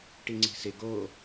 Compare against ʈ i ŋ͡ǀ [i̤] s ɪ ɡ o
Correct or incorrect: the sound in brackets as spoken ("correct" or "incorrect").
correct